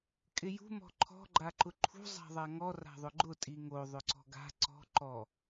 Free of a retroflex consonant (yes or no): yes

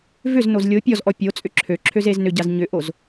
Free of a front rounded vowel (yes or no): no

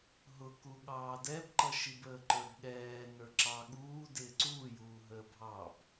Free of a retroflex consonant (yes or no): yes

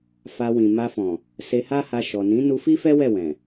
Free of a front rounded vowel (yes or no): yes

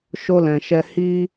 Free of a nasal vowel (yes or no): no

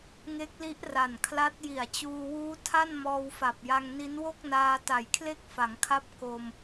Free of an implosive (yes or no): yes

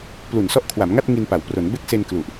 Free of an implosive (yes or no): yes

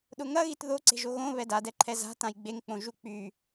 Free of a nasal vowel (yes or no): no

